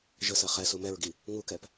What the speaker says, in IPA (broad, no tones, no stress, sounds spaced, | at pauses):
ʒ ə s ɜ χ ɛ s u m ɛ ɹ ɡ i | ŋ u k ɛ p